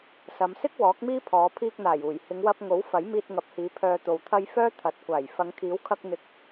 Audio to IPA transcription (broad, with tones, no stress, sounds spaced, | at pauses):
s ɐ˨˧ m s ɪ˥ k̚ w ɔː˨˥ k̚ m iː˥ pʰ ɔː˨˧ pʰ iː˧ k̚ n̪ aː˨˩ j uː˨˩ j h ɪ˨˧ ŋ w ɐ˧ p̚ ŋ o˨˥ w f ɐ˨˥ j m iː˧ t̚ ŋ ɐ˨˥ p̚ h iː˨˧ pʰ œː˧ t̪ o˨ w t̪ʰ ɐ˥ j f œː˥ t̪ʰ ɐ˨ t̚ kʷ aː˨˩ j f ɐ˨˧ ŋ kʰ iː˨˥ w kʰ ɐ˧ k̚ n̪ ɪ˨ k̚